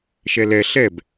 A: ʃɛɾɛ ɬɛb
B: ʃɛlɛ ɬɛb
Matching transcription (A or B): B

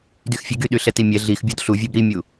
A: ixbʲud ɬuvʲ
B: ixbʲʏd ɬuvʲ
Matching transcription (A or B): A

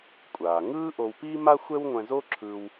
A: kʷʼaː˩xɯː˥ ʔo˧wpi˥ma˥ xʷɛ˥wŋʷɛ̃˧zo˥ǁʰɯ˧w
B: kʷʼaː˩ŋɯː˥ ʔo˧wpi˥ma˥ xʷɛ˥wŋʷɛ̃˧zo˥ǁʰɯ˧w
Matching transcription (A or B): B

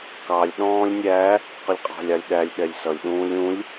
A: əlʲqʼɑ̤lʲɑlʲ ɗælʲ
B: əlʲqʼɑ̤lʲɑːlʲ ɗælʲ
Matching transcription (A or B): A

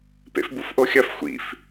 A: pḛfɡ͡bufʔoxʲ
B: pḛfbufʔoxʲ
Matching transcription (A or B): B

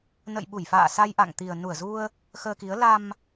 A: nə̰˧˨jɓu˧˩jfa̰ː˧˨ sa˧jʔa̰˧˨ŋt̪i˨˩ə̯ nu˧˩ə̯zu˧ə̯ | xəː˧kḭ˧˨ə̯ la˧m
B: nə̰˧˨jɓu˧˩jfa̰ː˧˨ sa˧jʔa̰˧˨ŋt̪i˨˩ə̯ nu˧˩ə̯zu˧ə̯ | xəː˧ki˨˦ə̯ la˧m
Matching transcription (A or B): B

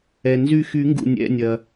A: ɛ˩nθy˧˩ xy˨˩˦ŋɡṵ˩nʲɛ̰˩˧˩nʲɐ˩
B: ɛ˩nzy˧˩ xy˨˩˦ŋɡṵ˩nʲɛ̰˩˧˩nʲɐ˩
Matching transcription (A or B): B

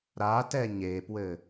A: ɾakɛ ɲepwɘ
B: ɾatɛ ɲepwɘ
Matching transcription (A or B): B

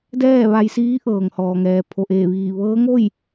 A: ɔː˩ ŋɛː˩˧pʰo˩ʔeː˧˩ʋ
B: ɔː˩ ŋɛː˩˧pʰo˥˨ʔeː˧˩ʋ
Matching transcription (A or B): A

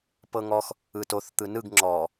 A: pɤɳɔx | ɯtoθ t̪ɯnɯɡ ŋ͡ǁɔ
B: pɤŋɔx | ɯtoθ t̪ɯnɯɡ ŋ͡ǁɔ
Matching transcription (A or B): B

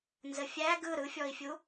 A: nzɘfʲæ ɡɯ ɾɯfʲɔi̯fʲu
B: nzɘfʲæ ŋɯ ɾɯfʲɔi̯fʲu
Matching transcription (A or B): A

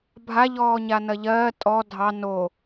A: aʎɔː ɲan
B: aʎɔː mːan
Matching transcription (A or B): A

